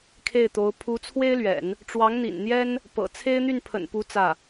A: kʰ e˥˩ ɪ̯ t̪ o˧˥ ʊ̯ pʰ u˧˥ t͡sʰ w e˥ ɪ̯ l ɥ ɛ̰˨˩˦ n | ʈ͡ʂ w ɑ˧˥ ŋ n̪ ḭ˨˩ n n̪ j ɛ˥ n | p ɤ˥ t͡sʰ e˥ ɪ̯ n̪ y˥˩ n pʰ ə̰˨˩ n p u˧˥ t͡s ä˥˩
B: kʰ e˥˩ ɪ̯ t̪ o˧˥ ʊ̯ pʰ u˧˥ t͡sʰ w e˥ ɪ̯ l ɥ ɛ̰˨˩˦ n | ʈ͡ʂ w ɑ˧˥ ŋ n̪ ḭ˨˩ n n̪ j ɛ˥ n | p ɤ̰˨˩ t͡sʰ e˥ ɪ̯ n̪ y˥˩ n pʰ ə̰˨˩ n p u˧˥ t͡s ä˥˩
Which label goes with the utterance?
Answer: B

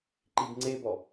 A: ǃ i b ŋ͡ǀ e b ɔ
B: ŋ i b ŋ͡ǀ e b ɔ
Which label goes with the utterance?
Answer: A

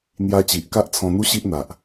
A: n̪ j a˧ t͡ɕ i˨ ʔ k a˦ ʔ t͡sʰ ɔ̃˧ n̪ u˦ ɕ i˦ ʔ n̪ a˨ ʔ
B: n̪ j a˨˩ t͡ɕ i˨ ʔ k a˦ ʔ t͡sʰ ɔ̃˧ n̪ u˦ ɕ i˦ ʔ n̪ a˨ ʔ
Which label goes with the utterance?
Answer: A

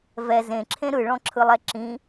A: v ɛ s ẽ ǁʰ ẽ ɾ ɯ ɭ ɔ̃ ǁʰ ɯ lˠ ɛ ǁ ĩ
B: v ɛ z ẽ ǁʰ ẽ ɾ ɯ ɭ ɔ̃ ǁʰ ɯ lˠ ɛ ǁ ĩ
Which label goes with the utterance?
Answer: B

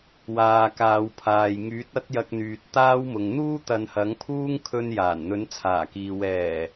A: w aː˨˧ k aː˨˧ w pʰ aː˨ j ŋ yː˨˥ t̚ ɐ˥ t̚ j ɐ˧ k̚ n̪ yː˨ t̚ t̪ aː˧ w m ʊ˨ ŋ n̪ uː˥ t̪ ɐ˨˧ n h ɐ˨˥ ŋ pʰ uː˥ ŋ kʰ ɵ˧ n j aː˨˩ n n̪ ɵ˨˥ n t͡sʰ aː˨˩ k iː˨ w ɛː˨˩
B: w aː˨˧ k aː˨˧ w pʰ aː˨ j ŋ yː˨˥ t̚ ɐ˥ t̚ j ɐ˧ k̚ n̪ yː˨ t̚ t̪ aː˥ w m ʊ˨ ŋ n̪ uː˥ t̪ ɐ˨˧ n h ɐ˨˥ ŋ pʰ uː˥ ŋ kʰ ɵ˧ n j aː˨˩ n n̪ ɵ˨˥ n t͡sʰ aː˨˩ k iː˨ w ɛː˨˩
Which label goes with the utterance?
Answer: B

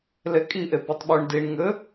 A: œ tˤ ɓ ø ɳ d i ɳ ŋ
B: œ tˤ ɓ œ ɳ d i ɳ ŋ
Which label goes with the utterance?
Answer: B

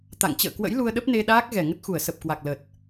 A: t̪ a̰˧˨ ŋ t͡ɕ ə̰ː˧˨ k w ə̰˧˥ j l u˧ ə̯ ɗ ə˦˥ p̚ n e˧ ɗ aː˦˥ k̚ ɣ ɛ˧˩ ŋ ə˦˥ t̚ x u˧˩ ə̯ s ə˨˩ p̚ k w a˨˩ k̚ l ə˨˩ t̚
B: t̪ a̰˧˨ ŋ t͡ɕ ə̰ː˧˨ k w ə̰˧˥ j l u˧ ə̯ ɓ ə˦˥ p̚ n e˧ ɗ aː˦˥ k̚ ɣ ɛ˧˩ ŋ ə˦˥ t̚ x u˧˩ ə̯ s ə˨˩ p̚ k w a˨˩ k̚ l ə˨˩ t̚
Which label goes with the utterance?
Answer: A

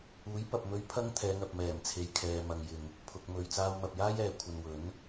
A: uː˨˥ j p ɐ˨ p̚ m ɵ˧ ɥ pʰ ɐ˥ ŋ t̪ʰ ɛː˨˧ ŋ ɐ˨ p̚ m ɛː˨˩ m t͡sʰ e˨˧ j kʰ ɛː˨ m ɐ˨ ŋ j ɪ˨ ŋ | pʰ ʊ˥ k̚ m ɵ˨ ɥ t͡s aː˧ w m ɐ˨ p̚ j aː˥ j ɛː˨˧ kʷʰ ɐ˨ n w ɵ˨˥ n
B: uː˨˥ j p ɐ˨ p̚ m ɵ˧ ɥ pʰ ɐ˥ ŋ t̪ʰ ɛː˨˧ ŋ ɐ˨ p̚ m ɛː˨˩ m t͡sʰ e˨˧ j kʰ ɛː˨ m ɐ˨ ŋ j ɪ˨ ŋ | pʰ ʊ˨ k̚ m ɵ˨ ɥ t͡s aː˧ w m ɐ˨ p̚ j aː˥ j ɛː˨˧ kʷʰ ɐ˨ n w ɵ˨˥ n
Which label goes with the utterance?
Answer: B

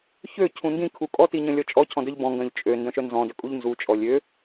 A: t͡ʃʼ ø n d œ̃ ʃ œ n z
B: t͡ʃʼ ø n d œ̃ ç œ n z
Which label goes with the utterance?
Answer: A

